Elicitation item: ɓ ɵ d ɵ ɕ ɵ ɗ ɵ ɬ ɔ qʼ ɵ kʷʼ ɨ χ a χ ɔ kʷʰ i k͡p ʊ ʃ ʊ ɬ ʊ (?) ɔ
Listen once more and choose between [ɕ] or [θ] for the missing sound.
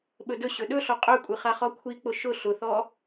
θ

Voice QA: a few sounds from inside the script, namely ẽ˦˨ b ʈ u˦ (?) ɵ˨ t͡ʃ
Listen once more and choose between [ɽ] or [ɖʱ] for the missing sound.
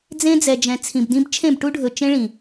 ɖʱ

